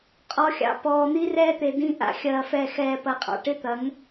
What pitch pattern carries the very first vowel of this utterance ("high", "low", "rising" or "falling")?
low